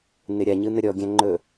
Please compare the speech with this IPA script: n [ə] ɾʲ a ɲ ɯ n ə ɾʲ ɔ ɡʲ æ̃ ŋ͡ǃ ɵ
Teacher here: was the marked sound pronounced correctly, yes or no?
no